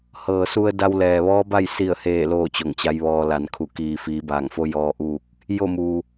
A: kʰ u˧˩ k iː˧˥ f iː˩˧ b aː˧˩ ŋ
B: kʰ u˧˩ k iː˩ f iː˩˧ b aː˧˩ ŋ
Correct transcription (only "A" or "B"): B